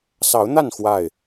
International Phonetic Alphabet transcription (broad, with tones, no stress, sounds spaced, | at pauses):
s ɑ˨˦ ʊ̯ n̪ a˥˨ n x w a˥˨ ɪ̯